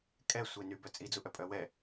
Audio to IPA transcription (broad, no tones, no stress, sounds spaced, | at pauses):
kʼ ɛ sʷ e n y b œ t͡sʼ i d͡z u ʔ œ pʼ œ w ɛ